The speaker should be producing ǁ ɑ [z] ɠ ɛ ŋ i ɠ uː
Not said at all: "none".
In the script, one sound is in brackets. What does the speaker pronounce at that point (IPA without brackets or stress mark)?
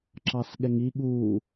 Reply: s